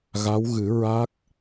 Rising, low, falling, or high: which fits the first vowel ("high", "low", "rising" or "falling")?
rising